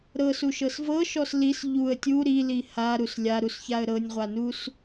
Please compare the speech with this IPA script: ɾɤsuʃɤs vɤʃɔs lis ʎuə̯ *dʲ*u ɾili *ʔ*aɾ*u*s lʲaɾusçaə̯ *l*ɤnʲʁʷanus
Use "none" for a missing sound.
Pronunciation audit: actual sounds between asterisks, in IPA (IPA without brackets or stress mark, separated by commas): tʲ, h, u, ɾ